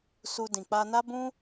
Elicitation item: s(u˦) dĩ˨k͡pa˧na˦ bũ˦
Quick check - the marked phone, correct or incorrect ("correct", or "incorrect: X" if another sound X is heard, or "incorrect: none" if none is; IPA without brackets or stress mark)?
incorrect: u˧